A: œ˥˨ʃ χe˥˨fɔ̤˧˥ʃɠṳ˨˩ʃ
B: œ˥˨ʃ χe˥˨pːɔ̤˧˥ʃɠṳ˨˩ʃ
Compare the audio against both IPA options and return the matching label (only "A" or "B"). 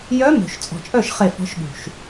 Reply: A